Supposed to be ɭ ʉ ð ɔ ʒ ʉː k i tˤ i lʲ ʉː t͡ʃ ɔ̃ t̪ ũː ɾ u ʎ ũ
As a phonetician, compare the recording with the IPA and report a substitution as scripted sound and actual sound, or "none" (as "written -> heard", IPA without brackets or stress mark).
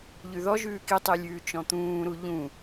ɭ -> ʎ